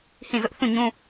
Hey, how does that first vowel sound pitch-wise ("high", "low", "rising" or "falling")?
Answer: falling